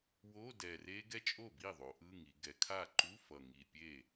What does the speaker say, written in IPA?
w o˧˥˧ d ɛ˨˩ r e˦˥ ɡ ɛ˦˥ t͡ʃʼ o˥˩ b i˥˩ ðˤ o˩˧ ʔ ɯ˧˥˧ ŋ i˩˧ ɡ ɛ˩˧ kʰ a˥˩ ǃ u˧˥˧ f ʌ˨˩ ŋ i˨˩ pʲ e˥˩

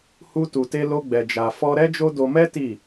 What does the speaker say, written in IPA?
h u˦ t u˧ t e˦ l o˦ ɡ͡b ɛ˧ d͡ʒ a˧ f ɔ˦ ɾ ɛ˦ d͡ʒ o˦ d o˧ m ɛ˦ t i˦˨

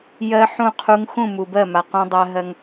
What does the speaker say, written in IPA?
j ɜ˦ ħ ũ˦˨ qʰ u˦ ŋ x ũ˦˨ m u˨ b ɜ˦˨ m a˨ q ũ˦ dˤ ɜ˦ ɦ ɜ˦ ŋ

